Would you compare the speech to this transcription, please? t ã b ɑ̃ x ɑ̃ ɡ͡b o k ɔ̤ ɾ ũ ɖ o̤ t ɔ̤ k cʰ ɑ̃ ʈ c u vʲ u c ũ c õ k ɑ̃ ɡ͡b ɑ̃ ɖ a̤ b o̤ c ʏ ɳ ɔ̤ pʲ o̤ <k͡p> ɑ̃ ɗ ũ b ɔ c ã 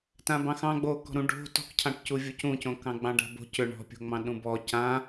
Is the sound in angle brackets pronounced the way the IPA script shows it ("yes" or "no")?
no